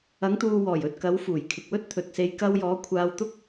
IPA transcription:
ɐ˨˧ ŋ t̪ uː˨ w ɔː˨˩ j ɵ˨ t̚ k ɐ˨˧ w f uː˨˩ j kʰ ɪ˨ k̚ w ɵ˥ t̚ t̪ʰ ɵ˨ t̚ s e˧ j k ɐ˧ w j ɔː˨˧ kʷʰ aː˧ w t̪ ʊ˥ k̚

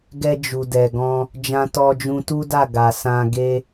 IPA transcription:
ɡ ɛ˧ d͡ʒ u˨ d ɛ˨ ɡ ɔ̃˧ | d͡ʒ ã˧ t ɔ˧ d͡ʒ ũ˧ t u˦ d a˦˨ ɡ a˨ s ã˧ ɡ e˦

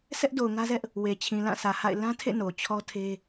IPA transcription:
s ɛ˦ ʔ d o˨ ʊ̯ ŋ ä˦ z ɛ˦ ʔ | w e˨ t͡ɕʰ ĩ˨ l ã˦˨ s ä˨ h a̰˦˨ ɪ̯ l ã˦ tʰ ḛ˦˨ n o˨ t͡ɕʰ ɔ˦ tʰ e˦

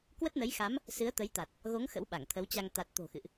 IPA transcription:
k w ə˦˥ t̚ n ə˨˦ j x a˨˦ m | s ɨ˨˦ ə̯ t̪ ə˨˦ j t̪ a˨˩ t̚ | ɣ o˨˦ ŋ x ə̰˧˥ w ɓ a˧˩ ŋ t̪ʰ ə˨˦ w t͡ɕ a˧ ŋ t̪ a˨˩ t̚ t̪ o̤˨˩ x ɨ̰˧˨ ʔ

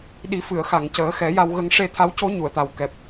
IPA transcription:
ɗ i˨˩˦ f ɨ˨˩˨ ə̯ x a˨˩˨ ŋ c əː˨˩˦ x ɛ˨˩˦ j a˧ w ɣ ə˧ ŋ ʂ e˧ t̪ʰ a˧˥ w c o˧˥ ɲ u˨˩˨ ə̯ t̪ a˨˩ w k ɛ˨˩ p̚

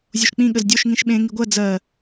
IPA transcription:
zʲ o ʃ k͡p ĩ ɠ ə z dʲ o ʃ ŋ ĩ ʃ ɓ ẽ ŋ i ɡʷ ɜ d͡z ɜ

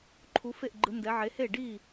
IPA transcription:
ǃʰ u˨˦ f e˥˩ ʔ ɡ͡ǃ ɯ˨˦ n d ɛ˨˦ ʕ e˨˦ h e˥˩ ɖ i˥˩

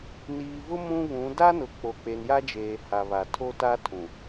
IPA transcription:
n iː˨ v ʊ˦ m ũ˦ β ũ˨˦ d a˦ n ʊ˨ k͡p o˨ k͡p e˨ n j a˦ d͡ʒ eː˨ h a˨ β a˨ tʰ o˦ t a˦ tʰ ũ˨

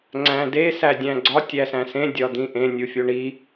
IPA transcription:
ŋ͡ǀ æ̃ d e s æ dʲ æ̃ ɡ͡ǀ ɒ tʲ æ s æ̃ s ẽ dʲ ɒ d̪ ĩ ʔ ẽ nʲ u fʲ o ɳ i

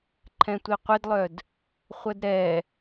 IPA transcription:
ǃʰ ɛ̃ tʷ i qʷ ɪ d lˠ œ d | χʷ ə d ɾ ɛ

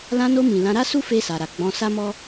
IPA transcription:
l ã˧ n o˧ m ĩ˨ l ã˧ ɾ a˦ s u˦ f e˧ s a˨ ɾ a˨ ɡ͡b ɔ̃˧ s a˦ m ɔ˦

